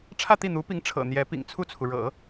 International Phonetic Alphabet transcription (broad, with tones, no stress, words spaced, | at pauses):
ʈ͡ʂʰä˥˧t̪i˥˩n̪u˧˥pi˧˥ŋ ʈ͡ʂʰɤ̰˨˩n̪jɛ˧˥pḭ˨˩ŋ t͡sʰu˥˩t͡sʰu˩ ɻɤ̰˨˩˦